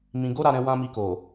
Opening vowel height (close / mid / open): close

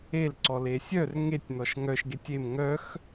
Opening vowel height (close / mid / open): mid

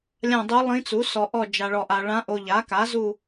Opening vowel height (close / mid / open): open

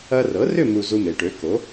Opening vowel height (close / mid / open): open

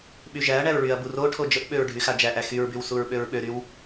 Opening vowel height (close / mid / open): close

